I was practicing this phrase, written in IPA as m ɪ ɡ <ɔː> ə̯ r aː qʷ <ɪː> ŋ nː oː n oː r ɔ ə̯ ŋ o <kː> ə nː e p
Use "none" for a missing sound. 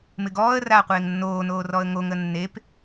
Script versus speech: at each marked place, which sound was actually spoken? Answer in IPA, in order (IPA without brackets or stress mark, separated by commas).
ɔː, ɪː, ŋ